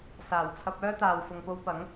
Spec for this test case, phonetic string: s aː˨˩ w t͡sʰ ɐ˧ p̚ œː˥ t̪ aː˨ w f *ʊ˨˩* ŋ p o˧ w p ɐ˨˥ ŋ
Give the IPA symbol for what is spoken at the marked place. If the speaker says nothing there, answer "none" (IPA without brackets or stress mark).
ʊ˨